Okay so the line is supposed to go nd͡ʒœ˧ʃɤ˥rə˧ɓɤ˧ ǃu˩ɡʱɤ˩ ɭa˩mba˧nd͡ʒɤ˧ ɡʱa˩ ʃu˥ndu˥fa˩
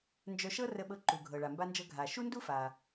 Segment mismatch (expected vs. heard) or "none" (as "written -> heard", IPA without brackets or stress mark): none